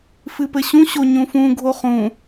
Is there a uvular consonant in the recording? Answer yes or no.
yes